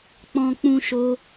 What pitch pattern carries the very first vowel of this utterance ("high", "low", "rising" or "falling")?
low